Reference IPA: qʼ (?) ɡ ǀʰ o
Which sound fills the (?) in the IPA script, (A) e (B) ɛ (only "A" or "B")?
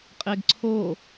A